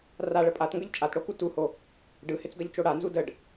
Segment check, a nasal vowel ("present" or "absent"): absent